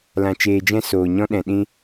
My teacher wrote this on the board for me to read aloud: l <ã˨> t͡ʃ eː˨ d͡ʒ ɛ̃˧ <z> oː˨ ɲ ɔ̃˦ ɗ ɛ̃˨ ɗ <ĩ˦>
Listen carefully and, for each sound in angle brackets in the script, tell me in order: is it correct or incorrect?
correct, incorrect: s, incorrect: ĩ˧

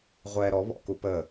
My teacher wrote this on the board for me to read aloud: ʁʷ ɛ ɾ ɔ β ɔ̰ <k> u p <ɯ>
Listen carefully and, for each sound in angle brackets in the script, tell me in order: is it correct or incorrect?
correct, incorrect: ə

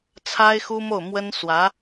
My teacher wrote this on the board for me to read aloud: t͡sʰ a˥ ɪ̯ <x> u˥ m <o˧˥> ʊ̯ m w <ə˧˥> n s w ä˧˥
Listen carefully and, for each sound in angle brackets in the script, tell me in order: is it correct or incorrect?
correct, incorrect: o˥˩, incorrect: ə˥

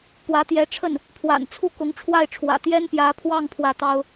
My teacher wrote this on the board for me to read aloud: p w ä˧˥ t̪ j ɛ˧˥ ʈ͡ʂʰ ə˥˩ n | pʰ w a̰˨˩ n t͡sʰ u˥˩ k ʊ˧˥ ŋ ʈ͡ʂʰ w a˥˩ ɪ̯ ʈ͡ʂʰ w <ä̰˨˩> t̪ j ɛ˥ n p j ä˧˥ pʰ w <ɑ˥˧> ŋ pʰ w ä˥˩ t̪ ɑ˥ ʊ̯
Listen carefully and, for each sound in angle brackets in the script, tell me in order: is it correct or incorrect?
correct, correct

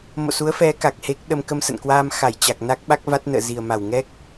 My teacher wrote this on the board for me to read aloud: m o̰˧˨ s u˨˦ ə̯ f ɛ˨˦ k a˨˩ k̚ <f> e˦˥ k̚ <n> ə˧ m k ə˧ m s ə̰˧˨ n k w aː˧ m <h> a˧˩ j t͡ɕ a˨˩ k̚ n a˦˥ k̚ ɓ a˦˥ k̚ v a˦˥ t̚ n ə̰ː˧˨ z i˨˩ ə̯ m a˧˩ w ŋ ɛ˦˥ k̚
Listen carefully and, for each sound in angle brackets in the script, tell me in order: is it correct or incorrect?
incorrect: h, incorrect: ɗ, incorrect: x

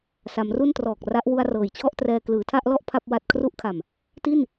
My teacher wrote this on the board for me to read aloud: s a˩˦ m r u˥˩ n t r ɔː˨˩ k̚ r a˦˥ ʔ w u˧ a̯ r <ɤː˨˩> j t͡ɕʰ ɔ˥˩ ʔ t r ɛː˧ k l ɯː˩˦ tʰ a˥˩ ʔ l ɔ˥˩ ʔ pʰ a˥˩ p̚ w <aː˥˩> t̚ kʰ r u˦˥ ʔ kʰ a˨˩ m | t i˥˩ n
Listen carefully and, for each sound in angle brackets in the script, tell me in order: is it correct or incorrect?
correct, incorrect: a˥˩

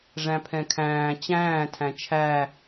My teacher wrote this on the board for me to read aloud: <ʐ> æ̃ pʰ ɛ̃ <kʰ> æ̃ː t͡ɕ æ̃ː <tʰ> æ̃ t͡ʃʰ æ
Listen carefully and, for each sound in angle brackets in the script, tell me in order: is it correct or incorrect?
correct, correct, correct

